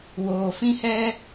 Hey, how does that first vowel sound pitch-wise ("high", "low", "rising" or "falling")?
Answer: low